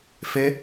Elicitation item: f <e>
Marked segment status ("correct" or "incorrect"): correct